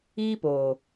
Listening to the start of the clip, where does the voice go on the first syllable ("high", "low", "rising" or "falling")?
high